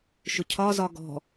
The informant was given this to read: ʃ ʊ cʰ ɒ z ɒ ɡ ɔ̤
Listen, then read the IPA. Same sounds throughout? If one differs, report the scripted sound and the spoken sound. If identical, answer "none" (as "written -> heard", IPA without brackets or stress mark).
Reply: none